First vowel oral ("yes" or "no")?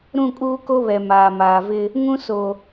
no